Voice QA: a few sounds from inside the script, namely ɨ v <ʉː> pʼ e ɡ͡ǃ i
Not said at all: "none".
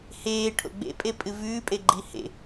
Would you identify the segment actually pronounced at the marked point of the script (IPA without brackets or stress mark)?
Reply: ʉː